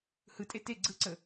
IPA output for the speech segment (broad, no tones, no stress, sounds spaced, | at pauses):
h ɯ tʼ e t e ɡ͡ǀ ɯ ǀ ə